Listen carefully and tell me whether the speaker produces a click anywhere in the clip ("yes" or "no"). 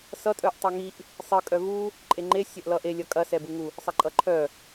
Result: yes